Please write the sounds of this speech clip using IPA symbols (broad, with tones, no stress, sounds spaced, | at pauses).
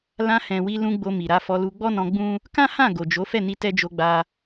l ã˧ h ɛ̃˨ w i˧ l ũ˧ ɡ͡b o˧ m i˨ ɾ a˨˦ f ɔ˧ l u˧ ɡ͡b ɔ˦ n ɔ̃˧ ɡ͡b ũ˦ | k ã˦ h ã˦˨ ɡ o˨ d͡ʒ o˨˦ f ɛ˦˨ n i˧ t ɛ˦ d͡ʒ o˧ ɡ͡b a˧